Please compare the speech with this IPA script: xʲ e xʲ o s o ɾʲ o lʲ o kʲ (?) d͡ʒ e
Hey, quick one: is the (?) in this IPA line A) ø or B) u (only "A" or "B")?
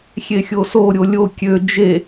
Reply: A